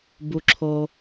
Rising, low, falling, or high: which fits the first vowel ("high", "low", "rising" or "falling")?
low